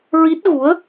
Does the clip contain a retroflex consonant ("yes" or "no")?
no